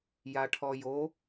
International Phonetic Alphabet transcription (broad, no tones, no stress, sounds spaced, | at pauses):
j a ʈʰ ɔ j o